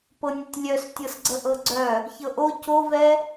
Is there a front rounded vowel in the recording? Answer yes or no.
yes